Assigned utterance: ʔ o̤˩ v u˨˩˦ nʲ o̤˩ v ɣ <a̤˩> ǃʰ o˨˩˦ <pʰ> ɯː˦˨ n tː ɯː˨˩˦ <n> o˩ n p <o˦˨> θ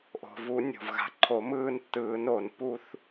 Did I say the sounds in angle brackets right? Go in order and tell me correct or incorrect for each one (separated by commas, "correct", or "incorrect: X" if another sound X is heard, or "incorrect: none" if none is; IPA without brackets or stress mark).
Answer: correct, incorrect: m, correct, incorrect: u˦˨